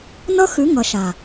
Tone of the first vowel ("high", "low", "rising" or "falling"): high